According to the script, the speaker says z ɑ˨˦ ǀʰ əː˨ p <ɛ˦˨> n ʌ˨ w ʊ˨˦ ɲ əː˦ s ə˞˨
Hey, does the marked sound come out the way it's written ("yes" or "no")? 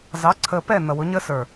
yes